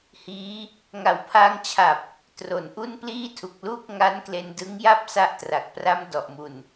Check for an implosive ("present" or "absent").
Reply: absent